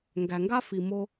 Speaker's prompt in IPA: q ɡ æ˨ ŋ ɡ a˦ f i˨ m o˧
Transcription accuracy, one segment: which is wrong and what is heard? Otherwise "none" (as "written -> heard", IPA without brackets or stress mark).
q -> ŋ